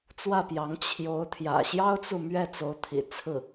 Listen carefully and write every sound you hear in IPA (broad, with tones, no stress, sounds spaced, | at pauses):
t͡s w ä˥˩ p j ɑ˧˥ ŋ t͡ɕʰ j o˧˥ ʊ̯ t̪ʰ j ä̰˨˩ ɕ j ɑ˥ ʊ̯ t͡s u˨ m ɥ ɛ˥˩ t͡s o˧˥ ʊ̯ t̪ʰ ḭ˨˩ t͡sʰ ɹ̩˥˩